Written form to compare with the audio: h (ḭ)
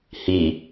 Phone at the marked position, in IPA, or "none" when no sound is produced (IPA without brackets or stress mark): i